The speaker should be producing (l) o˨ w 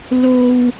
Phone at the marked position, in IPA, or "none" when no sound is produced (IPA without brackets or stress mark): l